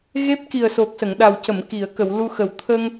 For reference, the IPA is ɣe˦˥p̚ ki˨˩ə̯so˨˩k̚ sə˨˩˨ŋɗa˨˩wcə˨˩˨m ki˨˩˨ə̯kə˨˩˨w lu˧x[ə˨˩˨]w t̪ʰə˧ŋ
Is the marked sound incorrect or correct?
incorrect